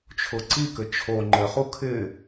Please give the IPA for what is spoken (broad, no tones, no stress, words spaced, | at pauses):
t͡ʃʰʊǀikɘ t͡ʃʰo ŋ͡ǃɘχu kʰɪ